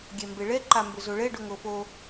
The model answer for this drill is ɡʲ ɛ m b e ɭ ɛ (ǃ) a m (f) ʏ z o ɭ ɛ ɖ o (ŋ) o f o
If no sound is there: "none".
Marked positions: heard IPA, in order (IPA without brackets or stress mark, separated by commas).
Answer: ǃ, b, ŋ